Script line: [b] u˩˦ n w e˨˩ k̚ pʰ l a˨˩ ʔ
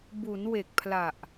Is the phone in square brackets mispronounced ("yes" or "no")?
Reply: no